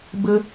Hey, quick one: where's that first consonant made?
lips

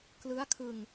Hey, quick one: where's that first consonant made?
velum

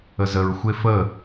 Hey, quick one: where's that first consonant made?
tongue tip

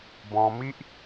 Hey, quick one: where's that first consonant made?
lips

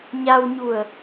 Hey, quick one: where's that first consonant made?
palate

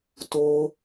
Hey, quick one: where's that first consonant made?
tongue tip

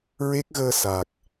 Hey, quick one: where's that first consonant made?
tongue tip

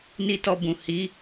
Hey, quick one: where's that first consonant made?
tongue tip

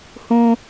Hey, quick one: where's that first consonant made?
throat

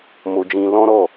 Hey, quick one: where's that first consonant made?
lips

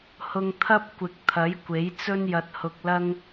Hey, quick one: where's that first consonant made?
throat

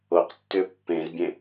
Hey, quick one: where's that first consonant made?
uvula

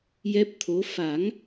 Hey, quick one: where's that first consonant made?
palate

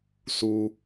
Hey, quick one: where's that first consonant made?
tongue tip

